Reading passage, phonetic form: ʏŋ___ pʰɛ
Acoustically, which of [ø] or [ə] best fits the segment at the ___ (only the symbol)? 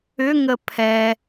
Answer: ə